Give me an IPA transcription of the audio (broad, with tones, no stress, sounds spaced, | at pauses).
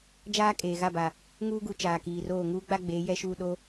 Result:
d͡ʒ aː˦ kʼ eː˨ ɣ a˦˨ b a˨ | ŋ uː˦ ɡ u˨ t͡ʃ aː˨ k iː˨ r oː˦˨ ŋ uː˦ ɡ͡b a˦ ɡ͡b eː˨˦ j ɛ˦ ʃ uː˦˨ ɗ o˦